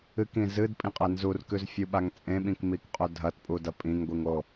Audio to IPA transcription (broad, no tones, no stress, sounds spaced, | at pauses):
ɨ k ĩ z ɨ d pʼ ĩ qʼ e n z u r k ʉ z fʲ u ɓ a ŋ t͡sʼ ẽ ɓ ĩ k m i k qʼ ɵ dʱ ɐ t pʼ u d ɐ pʼ ĩ ŋ ɡʷ i ŋ o